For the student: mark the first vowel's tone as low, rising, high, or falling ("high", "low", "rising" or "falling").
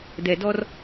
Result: low